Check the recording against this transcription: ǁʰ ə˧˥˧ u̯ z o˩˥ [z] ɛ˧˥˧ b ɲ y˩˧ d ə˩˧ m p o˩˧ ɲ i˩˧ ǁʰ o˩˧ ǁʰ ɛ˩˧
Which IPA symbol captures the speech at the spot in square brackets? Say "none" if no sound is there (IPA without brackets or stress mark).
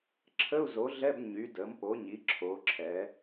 ɮ